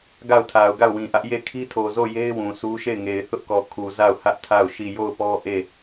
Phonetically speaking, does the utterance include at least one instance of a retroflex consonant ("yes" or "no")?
no